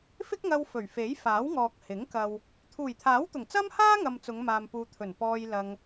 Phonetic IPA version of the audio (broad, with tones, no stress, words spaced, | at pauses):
fɪ˥k̚ŋɐ˧w fɵ˨˩ɥfe˨˥jfaː˨˥wŋɔː˨k̚ hɪ˨˥ŋ kɐ˨w | t̪ʰuː˨˩jt̪ʰaː˨˥wt̪ʊ˨˩ŋ t͡sɐ˥mhaː˥ŋɐ˨m t͡sʊ˨˧ŋmaː˨mpuː˨t̪ʰɵ˨˩n pɔː˧jlɐ˧ŋ